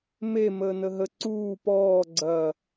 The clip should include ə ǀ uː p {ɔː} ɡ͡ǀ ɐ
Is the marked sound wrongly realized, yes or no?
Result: no